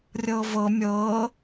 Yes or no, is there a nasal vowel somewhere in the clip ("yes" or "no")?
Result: no